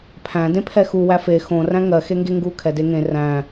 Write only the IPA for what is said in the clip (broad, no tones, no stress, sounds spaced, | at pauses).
pʰ æ̃ d ẽ pʰ ɛ x u w æ f e x õ r æ̃ ŋ ɜ x e ŋ ɡ e ŋ ɡ u kʰ ɛ d e ŋ ẽ r æ̃